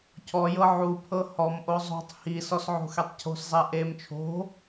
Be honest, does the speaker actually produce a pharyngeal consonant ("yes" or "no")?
yes